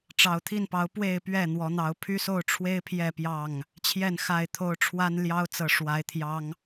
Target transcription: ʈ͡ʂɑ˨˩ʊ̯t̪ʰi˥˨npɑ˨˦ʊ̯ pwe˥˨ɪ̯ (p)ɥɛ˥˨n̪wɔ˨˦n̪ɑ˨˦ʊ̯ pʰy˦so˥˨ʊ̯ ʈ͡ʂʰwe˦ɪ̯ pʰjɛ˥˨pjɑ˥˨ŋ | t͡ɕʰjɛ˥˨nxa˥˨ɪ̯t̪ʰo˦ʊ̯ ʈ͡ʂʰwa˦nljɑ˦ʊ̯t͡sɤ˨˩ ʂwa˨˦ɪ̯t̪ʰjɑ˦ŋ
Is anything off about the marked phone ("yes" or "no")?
no